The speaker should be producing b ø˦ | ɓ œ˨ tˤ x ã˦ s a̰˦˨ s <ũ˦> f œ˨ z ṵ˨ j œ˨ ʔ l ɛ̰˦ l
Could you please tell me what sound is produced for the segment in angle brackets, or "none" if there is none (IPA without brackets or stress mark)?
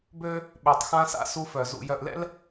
u˦